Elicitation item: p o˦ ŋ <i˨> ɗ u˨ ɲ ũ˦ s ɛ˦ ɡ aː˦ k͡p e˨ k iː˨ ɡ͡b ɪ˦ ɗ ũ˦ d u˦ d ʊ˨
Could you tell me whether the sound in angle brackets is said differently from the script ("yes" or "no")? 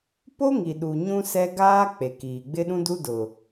no